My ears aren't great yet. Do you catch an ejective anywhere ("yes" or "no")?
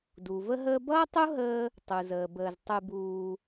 no